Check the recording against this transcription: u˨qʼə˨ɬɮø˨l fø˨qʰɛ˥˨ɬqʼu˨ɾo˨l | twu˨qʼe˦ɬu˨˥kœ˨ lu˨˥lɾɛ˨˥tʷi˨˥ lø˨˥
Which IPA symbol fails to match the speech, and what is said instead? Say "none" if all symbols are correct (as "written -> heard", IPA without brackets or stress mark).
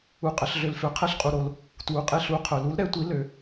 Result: k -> qʰ